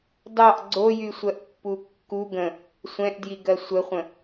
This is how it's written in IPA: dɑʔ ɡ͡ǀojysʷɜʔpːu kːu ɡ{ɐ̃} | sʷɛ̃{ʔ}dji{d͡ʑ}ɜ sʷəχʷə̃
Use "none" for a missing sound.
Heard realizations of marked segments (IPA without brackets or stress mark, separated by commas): ə̃, ʔ, ɡ